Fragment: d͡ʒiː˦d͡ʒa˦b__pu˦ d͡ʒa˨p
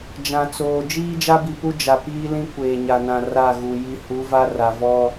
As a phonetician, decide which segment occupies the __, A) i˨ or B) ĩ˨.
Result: A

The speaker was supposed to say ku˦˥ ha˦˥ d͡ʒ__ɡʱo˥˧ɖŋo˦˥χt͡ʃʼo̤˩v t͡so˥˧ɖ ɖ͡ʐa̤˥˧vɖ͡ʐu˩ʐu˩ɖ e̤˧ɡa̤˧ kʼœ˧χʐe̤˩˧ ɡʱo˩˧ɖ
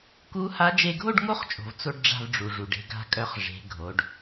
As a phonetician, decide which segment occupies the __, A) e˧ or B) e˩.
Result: A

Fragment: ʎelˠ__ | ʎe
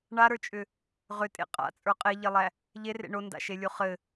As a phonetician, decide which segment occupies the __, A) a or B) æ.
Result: B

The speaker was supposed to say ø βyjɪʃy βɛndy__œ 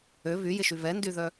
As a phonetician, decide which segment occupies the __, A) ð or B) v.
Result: A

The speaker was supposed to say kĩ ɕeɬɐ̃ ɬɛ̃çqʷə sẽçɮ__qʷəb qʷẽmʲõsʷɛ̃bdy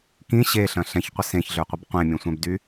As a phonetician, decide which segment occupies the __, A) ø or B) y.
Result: A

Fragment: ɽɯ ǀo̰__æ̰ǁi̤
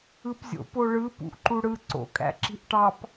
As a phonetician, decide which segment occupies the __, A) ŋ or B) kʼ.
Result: B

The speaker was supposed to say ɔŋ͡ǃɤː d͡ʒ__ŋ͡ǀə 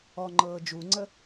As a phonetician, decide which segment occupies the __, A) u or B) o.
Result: A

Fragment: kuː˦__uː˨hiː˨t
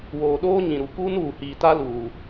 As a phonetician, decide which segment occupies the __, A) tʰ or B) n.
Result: B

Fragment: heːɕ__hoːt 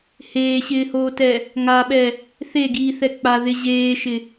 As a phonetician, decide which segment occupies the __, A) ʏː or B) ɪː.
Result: B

